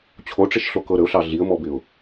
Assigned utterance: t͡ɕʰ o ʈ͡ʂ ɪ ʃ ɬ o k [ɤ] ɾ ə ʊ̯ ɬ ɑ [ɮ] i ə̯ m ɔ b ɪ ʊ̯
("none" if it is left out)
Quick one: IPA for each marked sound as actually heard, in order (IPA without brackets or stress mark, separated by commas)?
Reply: ɤ, ɮ